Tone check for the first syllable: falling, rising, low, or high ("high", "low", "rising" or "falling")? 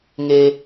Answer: high